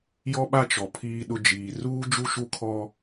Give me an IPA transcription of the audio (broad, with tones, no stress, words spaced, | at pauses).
jɔ˦ɓa˦ t͡ʃɔ˨pʰiː˦ɗʊ˦ d͡ʒiː˨ ruː˦d͡ʒu˦ʃu˦kʰɔ˦